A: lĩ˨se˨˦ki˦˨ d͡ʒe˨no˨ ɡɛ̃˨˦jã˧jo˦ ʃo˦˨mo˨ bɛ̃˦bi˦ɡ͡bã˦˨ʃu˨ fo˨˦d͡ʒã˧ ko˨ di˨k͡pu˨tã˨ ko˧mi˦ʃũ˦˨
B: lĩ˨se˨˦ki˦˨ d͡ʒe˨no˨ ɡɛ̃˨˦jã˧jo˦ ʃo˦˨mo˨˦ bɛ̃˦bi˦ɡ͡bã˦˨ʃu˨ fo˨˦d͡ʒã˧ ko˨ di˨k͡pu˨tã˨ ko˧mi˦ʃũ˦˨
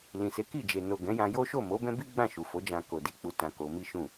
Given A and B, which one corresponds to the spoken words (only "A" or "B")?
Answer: B